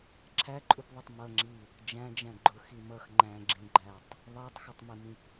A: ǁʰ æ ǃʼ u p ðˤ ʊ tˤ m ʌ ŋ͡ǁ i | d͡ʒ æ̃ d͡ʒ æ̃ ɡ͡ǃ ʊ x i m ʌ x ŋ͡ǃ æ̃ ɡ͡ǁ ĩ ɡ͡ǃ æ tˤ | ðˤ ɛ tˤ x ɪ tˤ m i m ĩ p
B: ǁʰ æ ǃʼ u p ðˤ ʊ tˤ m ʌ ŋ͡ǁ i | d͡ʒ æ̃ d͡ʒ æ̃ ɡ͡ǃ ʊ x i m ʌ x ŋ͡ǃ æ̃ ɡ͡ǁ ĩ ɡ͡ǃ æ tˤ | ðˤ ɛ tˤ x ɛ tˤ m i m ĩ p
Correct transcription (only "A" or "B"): A